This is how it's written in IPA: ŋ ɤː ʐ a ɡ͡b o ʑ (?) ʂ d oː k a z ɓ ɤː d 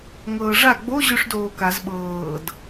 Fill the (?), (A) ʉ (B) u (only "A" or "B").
A